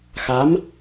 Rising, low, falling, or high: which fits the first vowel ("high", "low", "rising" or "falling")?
rising